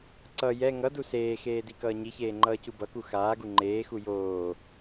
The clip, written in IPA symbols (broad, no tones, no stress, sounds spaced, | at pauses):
ǀ ʌ j ɛ ŋ ʌ d u s eː x eː d i k ʌː ɲ i ç eː ŋ͡ǃ ʌː c u b ʌ k u x aː ɡ u ŋ͡ǃ eː x u j oː